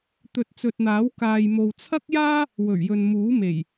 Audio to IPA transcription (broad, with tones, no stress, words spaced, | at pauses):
t̪ɵ˨t̚t͡sɵ˨t̚n̪aː˨˥w kaː˨jmo˨w t͡sʰɐ˥k̚jaː˥ | wɵ˨˩ɥjɵ˨n muː˨˥me˨˩j